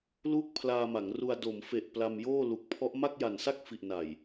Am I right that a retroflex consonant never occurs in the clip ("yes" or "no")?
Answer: yes